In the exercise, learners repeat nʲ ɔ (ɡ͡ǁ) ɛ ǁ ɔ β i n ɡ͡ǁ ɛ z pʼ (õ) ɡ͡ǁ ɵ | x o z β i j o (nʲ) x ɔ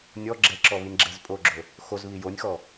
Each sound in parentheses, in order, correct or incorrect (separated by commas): correct, incorrect, correct